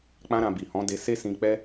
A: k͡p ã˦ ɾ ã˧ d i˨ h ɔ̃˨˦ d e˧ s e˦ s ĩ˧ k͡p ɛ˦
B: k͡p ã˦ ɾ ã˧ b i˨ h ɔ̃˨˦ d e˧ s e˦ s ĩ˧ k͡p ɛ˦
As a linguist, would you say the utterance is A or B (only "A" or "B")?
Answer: B